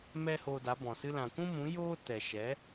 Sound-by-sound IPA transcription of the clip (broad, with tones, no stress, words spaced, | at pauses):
mɛ˦hoː˧da˨˦bɔ̃˨ sɨ˧lã˨kʷũ˦mũ˨˦ joː˦ tɛ˨ʃɛ˨˦